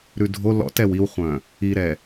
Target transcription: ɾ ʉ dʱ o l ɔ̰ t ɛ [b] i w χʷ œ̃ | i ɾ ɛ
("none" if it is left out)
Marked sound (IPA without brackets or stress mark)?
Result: w